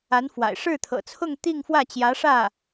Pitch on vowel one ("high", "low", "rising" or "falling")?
rising